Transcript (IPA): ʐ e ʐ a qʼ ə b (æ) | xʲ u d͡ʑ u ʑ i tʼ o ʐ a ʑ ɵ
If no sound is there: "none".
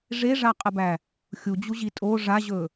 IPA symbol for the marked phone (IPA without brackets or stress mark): æ